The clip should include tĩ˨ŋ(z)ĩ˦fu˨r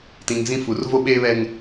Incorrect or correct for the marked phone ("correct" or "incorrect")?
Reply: correct